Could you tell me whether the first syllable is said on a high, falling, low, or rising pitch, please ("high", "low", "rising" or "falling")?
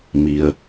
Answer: low